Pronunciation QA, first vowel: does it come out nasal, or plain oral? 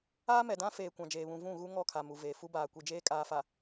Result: oral